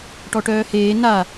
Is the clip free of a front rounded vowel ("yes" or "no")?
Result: no